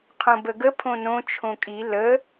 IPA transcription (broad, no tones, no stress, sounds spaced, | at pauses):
qʰ õ b ə ɡ ə pʰ õ n õ t͡ʃʰ õ kʼ i l ə